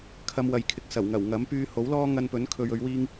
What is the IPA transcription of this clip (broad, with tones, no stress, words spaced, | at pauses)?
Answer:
kʰɐ˧mwɐ˨jkʰɪ˨k̚ sɐ˨˩wŋɐ˨˩w ŋɐ˨˥m pyː˧ho˨˥wlɔː˥ ŋɐ˧npɵ˨˥nkʰɵ˨ɥɵ˨˧ɥ wiː˥ŋ